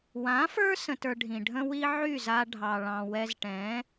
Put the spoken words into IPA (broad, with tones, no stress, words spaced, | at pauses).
wã˨˦fə˞˦ sə̃˧tə˞˧ɖʱĩ˨ ɖʱə̃˦wi˦ ʕy˦˨za˧ ɖʱɑ˨ ɭɑ̃˨wɛ˧z ʈɛ̃˨˦